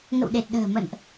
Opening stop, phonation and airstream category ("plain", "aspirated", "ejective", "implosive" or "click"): implosive